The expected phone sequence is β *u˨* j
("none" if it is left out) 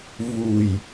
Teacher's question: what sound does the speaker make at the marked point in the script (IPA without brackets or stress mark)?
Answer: u˨